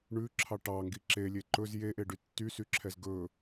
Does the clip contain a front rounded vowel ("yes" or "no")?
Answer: yes